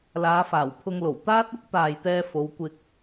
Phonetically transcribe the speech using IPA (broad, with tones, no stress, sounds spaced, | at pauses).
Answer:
l aː˨˧ f aː˨˩ w pʰ ʊ˧ ŋ l o˨˩ w t̪ aː˥ t̚ ʊ˥ k̚ t̪ aː˨ j t̪ ɛː˧ f o˨˧ w kʷ ɪ˧ k̚